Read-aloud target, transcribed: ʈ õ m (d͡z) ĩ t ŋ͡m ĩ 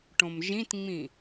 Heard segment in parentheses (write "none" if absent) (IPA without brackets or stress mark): ʒ